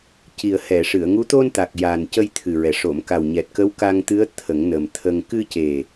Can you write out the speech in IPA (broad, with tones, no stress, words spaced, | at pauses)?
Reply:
ci˨˩ə̯hɛ˨˩˨ʂɨ˨˩˨ə̯ŋu˧˥ t̪o˧nt̪a˨˩k̚ ja˨˩n cə˧jt̪ʰɨ˨˩ɹɛ˨˩ ʂo˨˩˨mka˨˩wɲɛ˨˩t̚ kə˧˥wka˧ŋt̪ɨ˧˥ə̯ t̪ʰə˨˩˦ŋnə˨˩mt̪ʰə˧ŋ kɨ˧ce˨˩